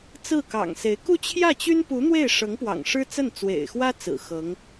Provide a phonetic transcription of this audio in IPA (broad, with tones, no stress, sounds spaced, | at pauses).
t͡s ɹ̩˥˩ k ɑ̰˨˩ ŋ s e˧˥ ɪ̯ k u˥˧ t͡ɕʰ j ä˥˩ t͡ɕ y˥ n p u˧˥ n̪ w e˥˩ ɪ̯ ʂ ɤ˧˥ ŋ p w ɑ̰˨˩ ŋ ʂ ɻ̩˥ t͡s ə˥˩ n t͡s w ḛ˨˩ ɪ̯ x w ä˥ t͡s ɹ̩˨˩ x ɤ˧˥ ŋ